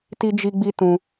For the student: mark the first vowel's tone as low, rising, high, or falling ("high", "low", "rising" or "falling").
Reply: high